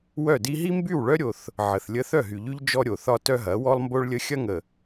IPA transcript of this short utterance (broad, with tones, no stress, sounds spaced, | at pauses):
w œ˦˨ d i˦ ɦ i˦ m b y˦˨ w ɭ œ˦ ɾʲ o˦ θ | ʕ ə˨ θ lʲ ə˦ θ œ˦˨ ɦ y˨ ʎ y˦ ʎ d͡ʒ ɔ˦ ɾʲ o˨ θ ɒ˦ t œ˦ ɦ ɐ˨˦ w ɔ˦ lˠ m b o˦ ɭ lʲ ə˦ xʲ ɐ˦ ŋ ə˨